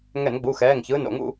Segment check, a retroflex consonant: absent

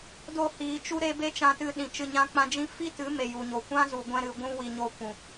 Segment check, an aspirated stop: absent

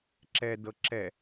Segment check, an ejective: absent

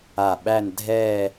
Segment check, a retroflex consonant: absent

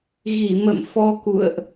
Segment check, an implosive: absent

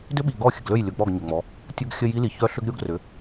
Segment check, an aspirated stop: absent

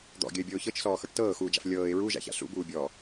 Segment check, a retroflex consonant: present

